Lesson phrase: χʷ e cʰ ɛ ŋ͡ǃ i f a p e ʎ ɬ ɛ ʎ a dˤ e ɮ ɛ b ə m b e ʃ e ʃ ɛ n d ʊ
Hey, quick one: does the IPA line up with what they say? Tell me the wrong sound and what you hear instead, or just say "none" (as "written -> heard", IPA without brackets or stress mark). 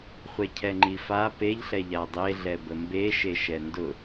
none